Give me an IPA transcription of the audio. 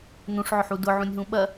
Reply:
nũʂʕʊħu dʊʕũnʲɦũ ɓɐ

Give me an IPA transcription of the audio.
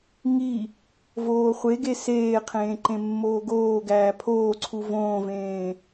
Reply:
ŋi | voːχʷeɡe seːqʰẽː ǃẽmːoːɡoːɡæː pʰoːǀʰu võːvẽː

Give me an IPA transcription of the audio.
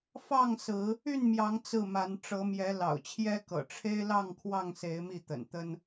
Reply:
fɑ˥˨ŋsɹ̩˨˦ | y˥˨nmjɑ˨˦ŋ t͡sɹ̩˥˨ma˨˦n ʈ͡ʂɤ˨˦mjɛ˨˦ lɑ̰˨˩ʊ̯t͡ɕʰjɛ˦kɤ̰˨˩ ʈ͡ʂʰe˦ɪ̯lɑ˥˨ŋkʰwɑ˥˨ŋse˨˦ɪ̯ mi˥˨t̪ə̰˨˩nt̪ə˦n

